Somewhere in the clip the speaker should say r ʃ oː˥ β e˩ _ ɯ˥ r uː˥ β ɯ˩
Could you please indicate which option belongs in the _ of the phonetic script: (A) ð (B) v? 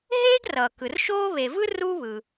B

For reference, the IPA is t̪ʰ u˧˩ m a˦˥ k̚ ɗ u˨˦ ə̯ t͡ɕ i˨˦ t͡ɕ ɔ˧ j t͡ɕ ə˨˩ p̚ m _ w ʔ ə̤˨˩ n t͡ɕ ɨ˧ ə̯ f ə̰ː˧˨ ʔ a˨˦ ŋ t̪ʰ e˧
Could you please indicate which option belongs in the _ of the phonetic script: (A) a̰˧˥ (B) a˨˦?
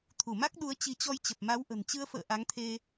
B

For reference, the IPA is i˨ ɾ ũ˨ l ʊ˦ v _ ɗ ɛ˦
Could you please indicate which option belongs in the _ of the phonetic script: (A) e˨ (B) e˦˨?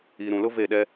B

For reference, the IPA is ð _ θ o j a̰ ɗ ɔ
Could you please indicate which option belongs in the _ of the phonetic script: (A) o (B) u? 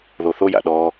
A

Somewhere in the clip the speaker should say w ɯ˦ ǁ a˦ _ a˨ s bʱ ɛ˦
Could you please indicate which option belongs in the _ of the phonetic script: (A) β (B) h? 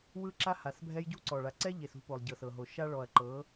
B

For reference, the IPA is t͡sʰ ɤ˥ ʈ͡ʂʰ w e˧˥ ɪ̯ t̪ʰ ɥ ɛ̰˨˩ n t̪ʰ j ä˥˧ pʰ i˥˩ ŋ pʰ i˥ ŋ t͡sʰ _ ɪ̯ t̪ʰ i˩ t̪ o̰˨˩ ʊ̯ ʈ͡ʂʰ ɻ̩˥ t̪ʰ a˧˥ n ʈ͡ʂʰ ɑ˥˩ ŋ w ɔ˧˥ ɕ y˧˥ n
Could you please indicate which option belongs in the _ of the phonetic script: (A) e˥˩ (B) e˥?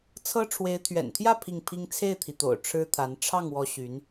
A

